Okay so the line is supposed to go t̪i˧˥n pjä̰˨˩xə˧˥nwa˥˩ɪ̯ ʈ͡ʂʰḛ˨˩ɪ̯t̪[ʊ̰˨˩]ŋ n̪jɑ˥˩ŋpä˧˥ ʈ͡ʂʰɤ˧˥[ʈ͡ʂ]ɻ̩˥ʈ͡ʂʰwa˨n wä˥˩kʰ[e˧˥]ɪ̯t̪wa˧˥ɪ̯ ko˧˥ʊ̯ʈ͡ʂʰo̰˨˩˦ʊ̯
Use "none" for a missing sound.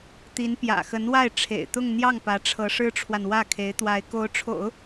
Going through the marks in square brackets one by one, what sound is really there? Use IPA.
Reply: ʊ˥˧, ʂ, e˧˥

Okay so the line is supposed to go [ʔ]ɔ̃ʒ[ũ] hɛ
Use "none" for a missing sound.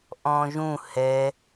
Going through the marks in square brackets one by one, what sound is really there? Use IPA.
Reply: ʔ, ũ

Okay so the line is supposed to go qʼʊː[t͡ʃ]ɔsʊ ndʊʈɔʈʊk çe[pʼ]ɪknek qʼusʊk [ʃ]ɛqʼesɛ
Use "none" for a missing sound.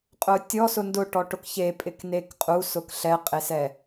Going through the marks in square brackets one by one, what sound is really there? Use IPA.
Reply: tʲ, pʼ, ɬ

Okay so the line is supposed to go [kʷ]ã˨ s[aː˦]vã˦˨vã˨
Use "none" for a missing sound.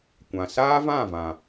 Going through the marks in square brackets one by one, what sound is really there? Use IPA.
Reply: kʷ, aː˦

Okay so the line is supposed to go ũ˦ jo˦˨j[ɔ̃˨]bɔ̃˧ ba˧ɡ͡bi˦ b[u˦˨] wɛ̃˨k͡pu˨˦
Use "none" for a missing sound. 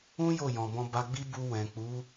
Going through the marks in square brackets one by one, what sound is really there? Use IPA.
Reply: ɔ̃˨, u˧

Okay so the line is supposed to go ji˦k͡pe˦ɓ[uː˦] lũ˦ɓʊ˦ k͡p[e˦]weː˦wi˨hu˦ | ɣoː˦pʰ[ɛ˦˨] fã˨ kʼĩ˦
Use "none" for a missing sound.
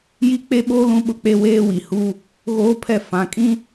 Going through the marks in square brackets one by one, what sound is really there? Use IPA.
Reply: oː˦, e˦, ɛ˦˨

